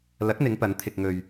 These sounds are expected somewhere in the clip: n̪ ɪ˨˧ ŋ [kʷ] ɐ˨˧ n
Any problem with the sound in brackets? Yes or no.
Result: yes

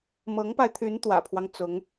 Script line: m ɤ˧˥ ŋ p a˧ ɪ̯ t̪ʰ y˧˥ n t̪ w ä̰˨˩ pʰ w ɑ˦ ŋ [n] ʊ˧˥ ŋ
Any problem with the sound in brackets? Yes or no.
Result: yes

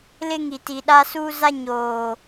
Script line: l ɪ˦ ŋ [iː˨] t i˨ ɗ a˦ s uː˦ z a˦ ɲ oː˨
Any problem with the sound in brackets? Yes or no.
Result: yes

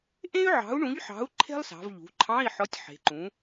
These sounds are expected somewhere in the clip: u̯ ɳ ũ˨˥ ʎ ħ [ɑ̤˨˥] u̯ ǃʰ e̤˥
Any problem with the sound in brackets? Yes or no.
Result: no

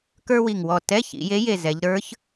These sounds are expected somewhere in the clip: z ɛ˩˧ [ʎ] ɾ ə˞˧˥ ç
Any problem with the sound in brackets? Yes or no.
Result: no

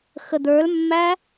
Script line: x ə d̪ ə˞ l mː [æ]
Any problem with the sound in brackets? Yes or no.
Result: no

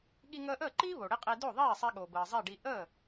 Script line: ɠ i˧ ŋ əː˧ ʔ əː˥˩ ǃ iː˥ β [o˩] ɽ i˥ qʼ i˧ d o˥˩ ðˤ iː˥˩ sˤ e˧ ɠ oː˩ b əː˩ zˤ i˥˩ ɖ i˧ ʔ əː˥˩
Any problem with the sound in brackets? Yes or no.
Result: no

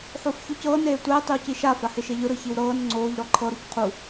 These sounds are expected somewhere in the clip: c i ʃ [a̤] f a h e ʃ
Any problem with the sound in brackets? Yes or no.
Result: yes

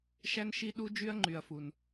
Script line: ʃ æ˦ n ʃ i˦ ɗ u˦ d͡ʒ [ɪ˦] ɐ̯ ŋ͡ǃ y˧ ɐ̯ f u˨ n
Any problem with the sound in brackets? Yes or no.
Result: yes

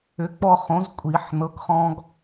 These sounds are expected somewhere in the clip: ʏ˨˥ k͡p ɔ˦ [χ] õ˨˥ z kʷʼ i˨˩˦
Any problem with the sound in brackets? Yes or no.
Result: no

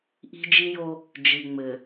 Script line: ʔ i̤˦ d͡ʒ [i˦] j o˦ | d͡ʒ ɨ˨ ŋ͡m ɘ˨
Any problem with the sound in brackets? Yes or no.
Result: no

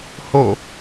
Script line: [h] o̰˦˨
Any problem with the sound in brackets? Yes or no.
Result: no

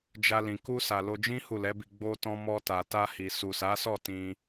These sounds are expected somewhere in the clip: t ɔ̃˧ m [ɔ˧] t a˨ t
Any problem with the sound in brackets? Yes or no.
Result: no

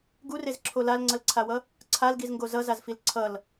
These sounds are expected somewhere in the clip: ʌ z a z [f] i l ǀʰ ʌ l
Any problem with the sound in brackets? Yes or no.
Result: no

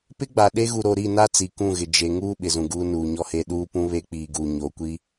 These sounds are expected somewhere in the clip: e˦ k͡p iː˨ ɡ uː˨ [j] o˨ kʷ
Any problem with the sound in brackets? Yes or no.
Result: yes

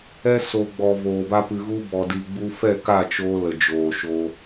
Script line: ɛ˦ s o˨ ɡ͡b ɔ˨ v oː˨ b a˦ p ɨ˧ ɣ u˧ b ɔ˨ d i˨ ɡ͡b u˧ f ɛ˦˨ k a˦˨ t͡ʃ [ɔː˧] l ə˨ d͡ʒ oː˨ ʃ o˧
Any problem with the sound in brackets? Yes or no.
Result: yes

